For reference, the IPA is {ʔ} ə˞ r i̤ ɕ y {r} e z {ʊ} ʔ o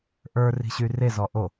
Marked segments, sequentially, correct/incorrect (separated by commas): correct, correct, incorrect